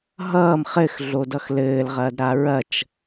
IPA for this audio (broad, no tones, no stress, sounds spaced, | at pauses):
ɦ ʌː m χ ɘ x ɮ o d ʌ x l ɘː l ʁ ɐː d ɾ a ɹ ɐ t͡ʃ